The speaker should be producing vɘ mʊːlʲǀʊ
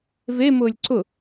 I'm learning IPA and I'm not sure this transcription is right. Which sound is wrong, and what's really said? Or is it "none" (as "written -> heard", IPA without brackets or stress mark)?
ɘ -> e